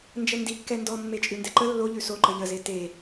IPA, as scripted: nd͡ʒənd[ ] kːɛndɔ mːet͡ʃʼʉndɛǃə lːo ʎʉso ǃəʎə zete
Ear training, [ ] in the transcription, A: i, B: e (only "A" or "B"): A